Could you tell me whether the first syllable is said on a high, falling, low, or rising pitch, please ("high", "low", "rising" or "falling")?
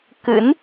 rising